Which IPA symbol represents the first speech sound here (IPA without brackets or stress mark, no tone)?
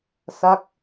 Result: s